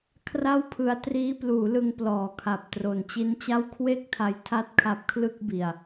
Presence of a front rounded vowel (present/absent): absent